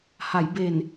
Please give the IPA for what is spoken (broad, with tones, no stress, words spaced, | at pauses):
ha˩˦jbe˨˩n